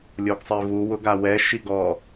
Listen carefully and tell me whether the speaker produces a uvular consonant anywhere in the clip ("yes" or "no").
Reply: no